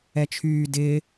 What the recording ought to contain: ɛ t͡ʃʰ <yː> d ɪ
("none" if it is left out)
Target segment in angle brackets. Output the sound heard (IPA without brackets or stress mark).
yː